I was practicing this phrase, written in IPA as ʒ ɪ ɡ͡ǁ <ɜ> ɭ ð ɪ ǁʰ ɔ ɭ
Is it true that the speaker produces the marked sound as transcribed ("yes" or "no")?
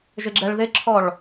no